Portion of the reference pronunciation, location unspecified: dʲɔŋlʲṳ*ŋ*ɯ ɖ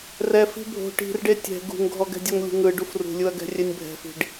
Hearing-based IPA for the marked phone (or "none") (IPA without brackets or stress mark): ŋ